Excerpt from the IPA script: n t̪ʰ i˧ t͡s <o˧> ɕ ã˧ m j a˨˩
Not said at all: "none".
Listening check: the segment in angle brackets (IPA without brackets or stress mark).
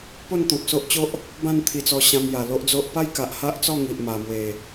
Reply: ɔ˧